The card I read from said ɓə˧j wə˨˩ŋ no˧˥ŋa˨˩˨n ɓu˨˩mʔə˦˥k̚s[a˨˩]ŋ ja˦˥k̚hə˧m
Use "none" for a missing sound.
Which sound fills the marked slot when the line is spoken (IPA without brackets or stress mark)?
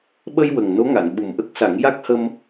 a˨˩˦